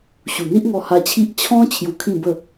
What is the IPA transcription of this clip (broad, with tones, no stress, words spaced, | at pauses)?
ɕu˨˩n̪i˦ʔŋɔ˧ ha˧t͡ɕʰi˦ʔ t͡ɕʰɔ̃˦ t͡ɕʰju˧kʰĩ˥˧bə˥˧